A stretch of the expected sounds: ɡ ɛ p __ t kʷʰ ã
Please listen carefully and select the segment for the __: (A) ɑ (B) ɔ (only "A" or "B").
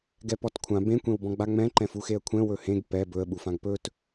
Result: B